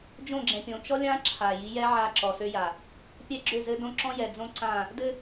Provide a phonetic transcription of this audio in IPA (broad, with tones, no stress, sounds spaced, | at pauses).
d͡ʒ õ˦˨ ɡ͡ǁ ɛ̃˨ pʲ õ˨ t͡ʃ ɔ˦ lʲ ã˦ ǁʰ a˨ j i˨˦ j ɛ˦ ʕ a˦˨ ǁ ɔ˨ s ø˦ j a˨ | pʲ ɛ˦ ɡ͡ǁ ø˦˨ z ɘ˦ d õ˦ ǁ ɔ̃˦ j ɛ˨ d͡z õ˦ ǀ ã˦˨ | d ɘ˦